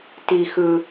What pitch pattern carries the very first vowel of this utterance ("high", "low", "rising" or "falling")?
low